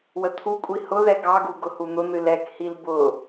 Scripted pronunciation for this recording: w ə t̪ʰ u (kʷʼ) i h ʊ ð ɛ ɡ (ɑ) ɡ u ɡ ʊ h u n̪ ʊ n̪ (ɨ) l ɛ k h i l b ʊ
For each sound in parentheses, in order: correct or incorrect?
correct, correct, correct

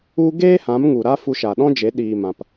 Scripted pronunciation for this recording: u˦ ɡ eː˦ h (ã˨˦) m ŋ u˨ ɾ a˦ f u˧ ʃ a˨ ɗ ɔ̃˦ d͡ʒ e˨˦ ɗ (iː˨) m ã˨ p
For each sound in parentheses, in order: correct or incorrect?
correct, correct

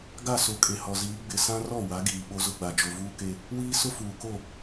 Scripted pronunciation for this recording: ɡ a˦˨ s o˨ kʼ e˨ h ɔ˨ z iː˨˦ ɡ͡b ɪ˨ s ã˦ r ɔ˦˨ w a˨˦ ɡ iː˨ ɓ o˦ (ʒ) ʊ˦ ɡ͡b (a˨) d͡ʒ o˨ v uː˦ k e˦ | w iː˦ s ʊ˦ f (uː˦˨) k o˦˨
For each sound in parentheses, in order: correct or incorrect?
incorrect, correct, incorrect

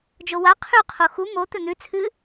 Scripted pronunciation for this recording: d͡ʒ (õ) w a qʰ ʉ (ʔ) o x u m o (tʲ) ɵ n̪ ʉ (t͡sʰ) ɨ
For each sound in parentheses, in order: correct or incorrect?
incorrect, incorrect, incorrect, correct

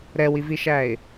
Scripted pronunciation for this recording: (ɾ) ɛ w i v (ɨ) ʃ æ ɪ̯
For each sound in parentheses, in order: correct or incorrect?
correct, incorrect

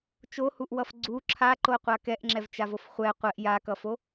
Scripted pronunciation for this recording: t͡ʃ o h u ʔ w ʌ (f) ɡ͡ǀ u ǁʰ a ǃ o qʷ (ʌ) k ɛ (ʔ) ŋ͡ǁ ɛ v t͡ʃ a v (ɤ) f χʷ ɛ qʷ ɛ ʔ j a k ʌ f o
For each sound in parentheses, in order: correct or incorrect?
correct, incorrect, correct, incorrect

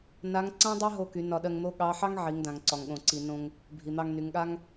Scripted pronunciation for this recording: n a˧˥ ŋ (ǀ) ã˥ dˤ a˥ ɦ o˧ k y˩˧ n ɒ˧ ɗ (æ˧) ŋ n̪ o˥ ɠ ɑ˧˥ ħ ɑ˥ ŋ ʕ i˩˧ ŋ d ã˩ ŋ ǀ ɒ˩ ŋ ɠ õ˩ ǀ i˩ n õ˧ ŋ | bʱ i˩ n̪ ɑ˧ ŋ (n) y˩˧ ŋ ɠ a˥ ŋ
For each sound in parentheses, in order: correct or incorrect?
correct, incorrect, correct

